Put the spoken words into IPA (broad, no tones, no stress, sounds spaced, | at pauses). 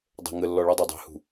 dˤ ə̤ ŋ ə lː ɔ ɭ ə˞ dˤ æ dˤ æ̤ h ṳ